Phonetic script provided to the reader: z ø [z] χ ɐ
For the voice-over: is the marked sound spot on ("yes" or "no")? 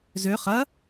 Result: no